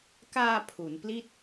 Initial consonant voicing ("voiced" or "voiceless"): voiceless